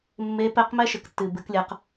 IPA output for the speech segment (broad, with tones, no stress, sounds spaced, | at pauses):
mː e˧˥ p ɛ˧˥ q m ɛ˥ ʃ ɘ˩ k tː ɨ˩ b ɨ˩˧ k lʲ ɐ˩˧ q